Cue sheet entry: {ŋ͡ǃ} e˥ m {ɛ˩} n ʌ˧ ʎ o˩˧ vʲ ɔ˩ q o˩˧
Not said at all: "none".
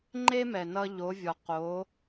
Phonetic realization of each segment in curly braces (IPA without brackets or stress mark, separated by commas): ŋ͡ǃ, ɛ˩